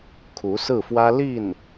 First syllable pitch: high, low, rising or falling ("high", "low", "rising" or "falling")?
rising